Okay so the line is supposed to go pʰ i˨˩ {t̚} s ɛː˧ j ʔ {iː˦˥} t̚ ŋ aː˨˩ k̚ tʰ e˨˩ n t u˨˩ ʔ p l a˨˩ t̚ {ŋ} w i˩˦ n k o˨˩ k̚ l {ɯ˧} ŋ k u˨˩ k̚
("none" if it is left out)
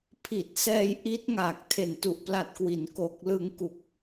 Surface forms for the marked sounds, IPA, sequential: t̚, i˦˥, k, ɯ˧

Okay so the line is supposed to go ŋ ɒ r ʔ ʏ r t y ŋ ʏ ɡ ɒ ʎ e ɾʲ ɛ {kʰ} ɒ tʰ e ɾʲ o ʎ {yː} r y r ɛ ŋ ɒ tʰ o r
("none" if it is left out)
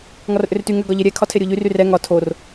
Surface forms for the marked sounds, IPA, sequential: kʰ, y

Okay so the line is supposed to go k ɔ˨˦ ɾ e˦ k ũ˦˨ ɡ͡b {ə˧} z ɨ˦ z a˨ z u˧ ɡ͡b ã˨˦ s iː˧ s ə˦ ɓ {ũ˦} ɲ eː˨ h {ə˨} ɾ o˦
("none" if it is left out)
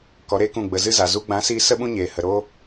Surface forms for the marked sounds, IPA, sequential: ə˧, ũ˦, ə˨

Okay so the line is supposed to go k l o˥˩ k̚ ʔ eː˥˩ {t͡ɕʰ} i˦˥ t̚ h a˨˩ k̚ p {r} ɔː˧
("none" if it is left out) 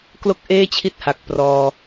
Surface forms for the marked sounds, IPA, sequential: t͡ɕʰ, r

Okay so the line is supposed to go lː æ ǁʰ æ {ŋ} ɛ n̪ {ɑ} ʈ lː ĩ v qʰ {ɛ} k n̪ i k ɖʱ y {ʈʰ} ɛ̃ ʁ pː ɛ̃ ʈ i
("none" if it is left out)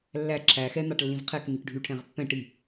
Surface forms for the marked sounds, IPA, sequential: x, ɑ, ɛ, ʈʰ

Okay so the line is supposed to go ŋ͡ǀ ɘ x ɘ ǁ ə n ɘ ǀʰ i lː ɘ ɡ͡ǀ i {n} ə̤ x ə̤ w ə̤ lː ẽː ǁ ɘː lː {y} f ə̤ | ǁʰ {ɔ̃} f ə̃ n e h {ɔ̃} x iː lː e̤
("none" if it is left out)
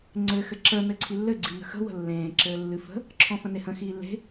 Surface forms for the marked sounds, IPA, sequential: n, ɨ, ɔ̃, ə̃

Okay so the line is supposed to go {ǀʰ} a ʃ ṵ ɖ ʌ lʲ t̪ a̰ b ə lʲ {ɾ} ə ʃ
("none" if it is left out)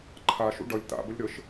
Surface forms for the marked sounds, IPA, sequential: ǃʰ, ɾ

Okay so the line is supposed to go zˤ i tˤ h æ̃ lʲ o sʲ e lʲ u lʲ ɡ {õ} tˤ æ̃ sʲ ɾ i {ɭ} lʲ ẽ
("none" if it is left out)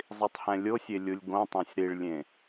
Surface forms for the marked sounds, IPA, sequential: õ, ɭ

